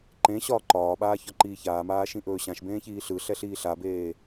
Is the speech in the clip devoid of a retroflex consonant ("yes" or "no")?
yes